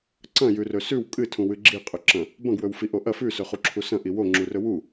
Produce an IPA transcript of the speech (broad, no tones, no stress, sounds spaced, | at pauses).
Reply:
ǀ ɐ̃ j ʉ r ɵ s ʉ w kʼ ɨ tʰ ũ w ɨ ɡ͡ǁ i qʼ ɵ ǁ ɐ̃ | b ɐ̃ ɡ w ɵ w f i ʔ o ʔ ɐ f ʉ s ɵ χ u ǁʰ u s ɐ̃ ʔ i w o ŋ͡ǁ u r ɵ w u